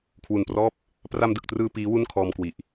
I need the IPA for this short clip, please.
kʰwu˨˩nprɔː˥˩p̚ | pra˧mdɯ˨˩k̚trɯː˧ piː˦˥ wu˥˩nkʰɔː˧mkwi˨˩ʔ

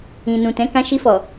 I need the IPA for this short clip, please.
ĩ˨nũ˨tɛ̃˨˦ kã˧ʃi˧fɔ˨

